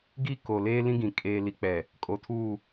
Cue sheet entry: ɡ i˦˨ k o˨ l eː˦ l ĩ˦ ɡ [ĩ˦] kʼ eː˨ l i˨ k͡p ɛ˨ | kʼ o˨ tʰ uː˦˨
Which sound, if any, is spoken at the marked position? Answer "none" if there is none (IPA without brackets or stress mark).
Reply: ĩ˨